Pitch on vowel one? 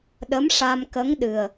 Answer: rising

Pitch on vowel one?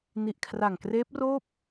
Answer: low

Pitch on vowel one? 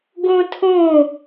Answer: high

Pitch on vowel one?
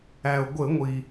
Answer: low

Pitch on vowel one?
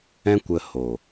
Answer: high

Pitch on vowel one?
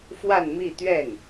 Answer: falling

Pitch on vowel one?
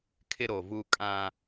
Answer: high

